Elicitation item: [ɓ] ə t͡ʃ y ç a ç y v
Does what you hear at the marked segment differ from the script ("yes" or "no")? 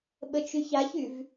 no